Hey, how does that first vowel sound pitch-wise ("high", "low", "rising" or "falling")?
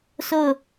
falling